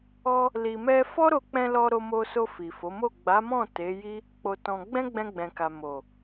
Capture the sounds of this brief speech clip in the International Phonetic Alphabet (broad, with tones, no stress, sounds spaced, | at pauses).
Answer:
ɔ˦ | l i˨ m ɛ˧ f ɔ˦ ɾ o˧ k͡p ɛ̃˧ l ɔ˧ ɾ o˧ m o˧ s o˧ f i˨ f o˨˦ m o˦˨ ɡ͡b a˨˦ m ɔ̃˦˨ t e˨˦ j i˦ | k͡p o˧ t ɔ̃˧ ɡ͡b ɛ̃˦ ɡ͡b ɛ̃˧ ɡ͡b ɛ̃˨ k a˨ m o˨